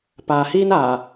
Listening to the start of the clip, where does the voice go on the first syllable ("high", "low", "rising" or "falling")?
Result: low